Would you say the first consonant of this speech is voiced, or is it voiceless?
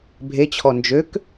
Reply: voiced